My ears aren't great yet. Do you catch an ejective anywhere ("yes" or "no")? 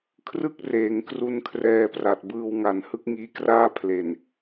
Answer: no